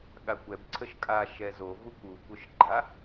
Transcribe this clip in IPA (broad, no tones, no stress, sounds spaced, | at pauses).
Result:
ɠ a kʷ ɛ b ǀʰ ə ʃ kʼ a ʃ ɛ z o v u kʷ u kʷ œ ʃ ɡ͡ǃ a